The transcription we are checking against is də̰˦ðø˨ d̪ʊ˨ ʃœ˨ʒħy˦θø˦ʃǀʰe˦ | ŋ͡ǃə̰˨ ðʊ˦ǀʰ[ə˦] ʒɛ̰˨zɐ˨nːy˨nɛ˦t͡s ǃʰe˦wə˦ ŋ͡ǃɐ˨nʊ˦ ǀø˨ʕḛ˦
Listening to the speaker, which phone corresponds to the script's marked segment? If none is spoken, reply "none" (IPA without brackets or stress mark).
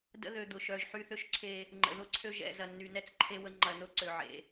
ø˦